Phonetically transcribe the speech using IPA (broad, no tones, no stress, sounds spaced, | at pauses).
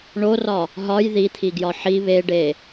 ɳ o r ɒ | ɦ ɒ j ð i t̪ʰ i ɡ j ɒ ħ i β e ɖ e